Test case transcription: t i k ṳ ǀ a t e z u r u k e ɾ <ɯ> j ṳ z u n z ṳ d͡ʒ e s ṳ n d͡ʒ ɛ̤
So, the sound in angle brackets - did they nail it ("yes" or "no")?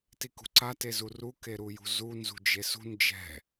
no